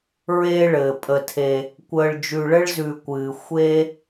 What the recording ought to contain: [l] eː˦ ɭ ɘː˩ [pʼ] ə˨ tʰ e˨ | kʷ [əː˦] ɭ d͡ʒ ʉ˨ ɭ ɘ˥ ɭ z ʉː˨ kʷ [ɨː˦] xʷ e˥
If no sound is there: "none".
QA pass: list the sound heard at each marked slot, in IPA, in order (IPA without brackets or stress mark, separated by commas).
ɹ, pʼ, əː˨, ɨː˩